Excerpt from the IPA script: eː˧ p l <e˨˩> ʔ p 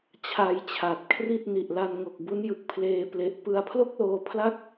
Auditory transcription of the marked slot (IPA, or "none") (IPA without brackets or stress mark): e˨˩